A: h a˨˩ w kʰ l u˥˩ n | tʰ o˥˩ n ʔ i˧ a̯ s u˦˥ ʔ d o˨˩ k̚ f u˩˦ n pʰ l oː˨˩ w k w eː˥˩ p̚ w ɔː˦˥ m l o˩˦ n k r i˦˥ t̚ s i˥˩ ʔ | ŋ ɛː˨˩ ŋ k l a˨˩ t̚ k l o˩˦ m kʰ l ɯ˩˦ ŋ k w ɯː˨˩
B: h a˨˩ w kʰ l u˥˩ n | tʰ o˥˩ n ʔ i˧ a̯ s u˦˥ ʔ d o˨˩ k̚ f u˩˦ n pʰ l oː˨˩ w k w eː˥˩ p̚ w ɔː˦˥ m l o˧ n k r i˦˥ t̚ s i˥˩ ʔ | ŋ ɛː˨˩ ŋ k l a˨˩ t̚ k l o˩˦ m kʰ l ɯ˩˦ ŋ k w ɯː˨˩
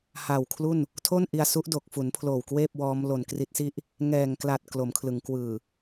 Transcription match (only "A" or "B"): B